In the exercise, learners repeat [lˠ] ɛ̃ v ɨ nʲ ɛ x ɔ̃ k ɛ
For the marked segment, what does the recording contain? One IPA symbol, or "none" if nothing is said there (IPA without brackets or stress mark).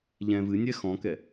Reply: ʎ